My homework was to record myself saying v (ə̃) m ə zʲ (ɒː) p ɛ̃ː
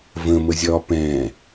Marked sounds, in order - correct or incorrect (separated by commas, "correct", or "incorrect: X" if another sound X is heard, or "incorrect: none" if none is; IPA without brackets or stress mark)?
correct, correct